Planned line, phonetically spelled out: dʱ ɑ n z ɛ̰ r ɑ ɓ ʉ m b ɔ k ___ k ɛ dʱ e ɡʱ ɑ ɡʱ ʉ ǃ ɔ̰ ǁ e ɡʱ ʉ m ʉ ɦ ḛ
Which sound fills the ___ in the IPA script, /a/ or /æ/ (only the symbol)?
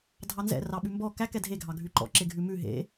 æ